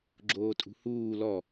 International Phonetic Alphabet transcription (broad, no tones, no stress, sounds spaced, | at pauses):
ɡ͡ǁ oː tʼ ṳ h uː l ɔ